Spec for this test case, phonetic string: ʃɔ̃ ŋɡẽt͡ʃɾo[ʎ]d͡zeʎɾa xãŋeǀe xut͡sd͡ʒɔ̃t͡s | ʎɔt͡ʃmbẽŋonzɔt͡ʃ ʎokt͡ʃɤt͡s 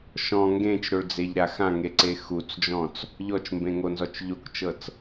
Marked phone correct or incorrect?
incorrect: ɭ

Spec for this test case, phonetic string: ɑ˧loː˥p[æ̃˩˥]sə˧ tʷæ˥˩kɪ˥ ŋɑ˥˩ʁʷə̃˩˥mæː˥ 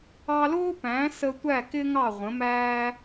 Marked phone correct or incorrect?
correct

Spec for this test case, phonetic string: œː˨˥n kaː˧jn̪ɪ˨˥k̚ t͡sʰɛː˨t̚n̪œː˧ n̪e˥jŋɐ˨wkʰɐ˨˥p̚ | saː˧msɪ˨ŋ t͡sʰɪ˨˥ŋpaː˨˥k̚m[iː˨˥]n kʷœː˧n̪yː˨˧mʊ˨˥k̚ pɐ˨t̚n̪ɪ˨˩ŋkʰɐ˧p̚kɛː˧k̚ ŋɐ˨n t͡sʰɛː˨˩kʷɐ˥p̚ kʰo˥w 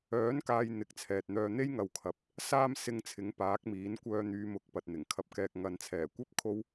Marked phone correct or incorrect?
correct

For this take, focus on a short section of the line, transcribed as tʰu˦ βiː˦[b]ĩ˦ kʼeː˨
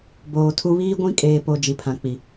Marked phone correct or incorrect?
incorrect: ɡʷ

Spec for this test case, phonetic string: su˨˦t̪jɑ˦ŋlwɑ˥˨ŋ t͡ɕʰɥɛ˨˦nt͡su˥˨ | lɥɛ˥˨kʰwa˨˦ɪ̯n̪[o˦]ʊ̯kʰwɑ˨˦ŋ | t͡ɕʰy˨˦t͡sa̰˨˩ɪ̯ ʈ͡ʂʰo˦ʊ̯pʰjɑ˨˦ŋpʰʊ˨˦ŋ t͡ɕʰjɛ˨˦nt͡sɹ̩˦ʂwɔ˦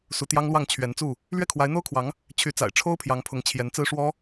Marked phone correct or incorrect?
correct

